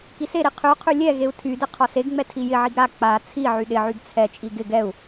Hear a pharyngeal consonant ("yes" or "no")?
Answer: yes